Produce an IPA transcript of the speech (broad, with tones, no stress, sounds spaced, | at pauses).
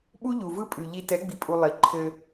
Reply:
ɓ u˦ ʎ u˨ v ɯ˦ pʼ ʉ˨ ʎ i˨ t ɛ˨˦ ɡ͡b i˨ pʼ u˨ lˠ i˨ ǃʰ ɘ˦